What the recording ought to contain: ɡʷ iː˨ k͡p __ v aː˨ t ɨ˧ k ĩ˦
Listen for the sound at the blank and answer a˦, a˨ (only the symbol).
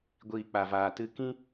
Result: a˨